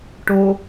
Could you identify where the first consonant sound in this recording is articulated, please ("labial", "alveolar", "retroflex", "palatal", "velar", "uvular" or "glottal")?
retroflex